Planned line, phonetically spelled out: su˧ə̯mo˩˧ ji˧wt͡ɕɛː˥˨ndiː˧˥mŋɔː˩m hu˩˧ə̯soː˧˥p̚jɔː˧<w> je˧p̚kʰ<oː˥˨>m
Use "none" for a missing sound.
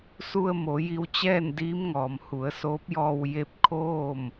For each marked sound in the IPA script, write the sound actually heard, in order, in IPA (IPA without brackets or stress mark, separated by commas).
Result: w, oː˥˨